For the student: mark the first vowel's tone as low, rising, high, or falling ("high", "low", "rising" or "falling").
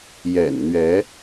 low